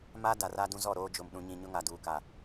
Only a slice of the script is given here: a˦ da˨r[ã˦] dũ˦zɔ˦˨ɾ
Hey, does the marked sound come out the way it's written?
no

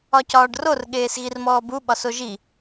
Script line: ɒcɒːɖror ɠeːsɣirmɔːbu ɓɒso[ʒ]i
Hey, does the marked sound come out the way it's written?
yes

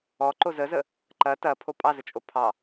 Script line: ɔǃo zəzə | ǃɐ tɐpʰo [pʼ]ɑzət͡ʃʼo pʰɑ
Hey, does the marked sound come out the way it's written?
yes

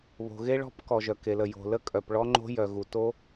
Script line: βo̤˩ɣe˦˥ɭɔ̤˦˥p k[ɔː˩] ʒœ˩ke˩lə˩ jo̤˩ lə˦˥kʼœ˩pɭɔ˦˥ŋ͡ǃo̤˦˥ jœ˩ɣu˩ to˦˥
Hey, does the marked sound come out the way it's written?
no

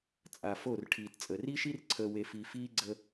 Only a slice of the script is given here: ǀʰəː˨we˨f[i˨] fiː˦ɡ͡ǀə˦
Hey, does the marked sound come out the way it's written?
yes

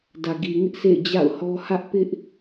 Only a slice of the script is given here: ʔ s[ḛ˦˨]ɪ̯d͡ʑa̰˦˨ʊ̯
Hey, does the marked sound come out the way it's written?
yes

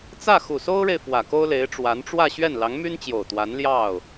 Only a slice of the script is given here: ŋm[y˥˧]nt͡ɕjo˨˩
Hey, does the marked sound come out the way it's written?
no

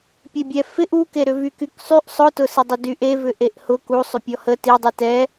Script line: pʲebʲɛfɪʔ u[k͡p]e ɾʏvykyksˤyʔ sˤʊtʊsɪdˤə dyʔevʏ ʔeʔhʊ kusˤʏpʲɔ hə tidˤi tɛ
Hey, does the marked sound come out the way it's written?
no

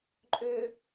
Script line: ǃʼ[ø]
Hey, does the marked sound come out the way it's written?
yes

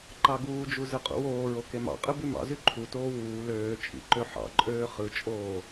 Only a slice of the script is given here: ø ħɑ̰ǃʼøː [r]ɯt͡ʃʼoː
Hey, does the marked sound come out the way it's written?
no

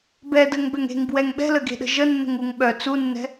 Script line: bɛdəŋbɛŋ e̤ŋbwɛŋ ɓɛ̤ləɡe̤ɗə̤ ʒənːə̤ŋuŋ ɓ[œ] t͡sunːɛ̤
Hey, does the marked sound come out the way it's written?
yes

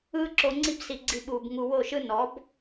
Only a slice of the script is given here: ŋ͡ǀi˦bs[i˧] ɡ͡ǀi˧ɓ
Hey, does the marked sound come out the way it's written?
yes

